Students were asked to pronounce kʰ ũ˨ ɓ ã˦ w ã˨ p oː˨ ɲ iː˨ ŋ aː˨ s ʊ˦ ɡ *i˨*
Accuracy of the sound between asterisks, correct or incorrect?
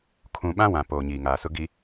correct